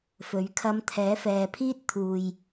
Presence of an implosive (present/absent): absent